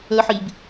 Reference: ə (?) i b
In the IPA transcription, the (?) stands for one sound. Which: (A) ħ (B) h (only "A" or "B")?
A